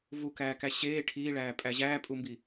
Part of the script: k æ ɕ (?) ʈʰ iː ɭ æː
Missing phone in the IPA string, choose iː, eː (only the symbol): eː